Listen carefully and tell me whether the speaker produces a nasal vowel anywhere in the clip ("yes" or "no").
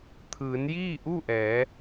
no